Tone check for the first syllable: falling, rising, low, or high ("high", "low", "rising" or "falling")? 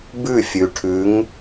falling